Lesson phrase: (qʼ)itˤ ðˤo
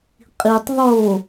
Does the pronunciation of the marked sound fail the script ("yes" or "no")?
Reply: no